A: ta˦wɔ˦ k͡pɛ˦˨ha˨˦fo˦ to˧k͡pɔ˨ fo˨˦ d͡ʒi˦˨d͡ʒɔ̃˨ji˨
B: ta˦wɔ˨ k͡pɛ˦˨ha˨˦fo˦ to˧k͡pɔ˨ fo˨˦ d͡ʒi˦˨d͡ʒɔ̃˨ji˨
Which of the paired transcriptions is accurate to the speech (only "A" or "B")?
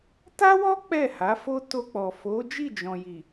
A